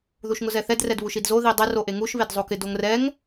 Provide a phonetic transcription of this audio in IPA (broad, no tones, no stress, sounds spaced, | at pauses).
ð u ʃ ŋ ʊ z ɛ θ ɛ d r ɛ d β u ʃ i d z o ð i dˤ e r o ʔ e ŋ u ʃ β e d zˤ o k ɪ d o ŋ r ɛ ŋ